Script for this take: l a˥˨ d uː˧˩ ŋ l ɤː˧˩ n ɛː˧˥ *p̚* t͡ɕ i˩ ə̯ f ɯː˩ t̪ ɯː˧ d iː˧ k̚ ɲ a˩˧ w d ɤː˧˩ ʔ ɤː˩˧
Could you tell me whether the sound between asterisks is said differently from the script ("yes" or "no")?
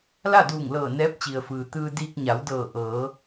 no